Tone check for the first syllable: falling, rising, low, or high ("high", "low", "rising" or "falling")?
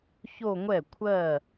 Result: falling